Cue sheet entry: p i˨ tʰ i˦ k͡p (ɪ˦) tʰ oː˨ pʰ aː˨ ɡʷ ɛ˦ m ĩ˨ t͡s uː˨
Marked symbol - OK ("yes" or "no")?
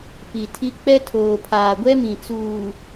no